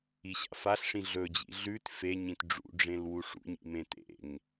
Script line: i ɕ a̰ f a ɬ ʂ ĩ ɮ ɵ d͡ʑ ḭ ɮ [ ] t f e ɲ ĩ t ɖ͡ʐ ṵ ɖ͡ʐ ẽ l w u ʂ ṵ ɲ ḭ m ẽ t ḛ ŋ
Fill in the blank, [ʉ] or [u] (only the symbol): ʉ